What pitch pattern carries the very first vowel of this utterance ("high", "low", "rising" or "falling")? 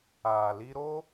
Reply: low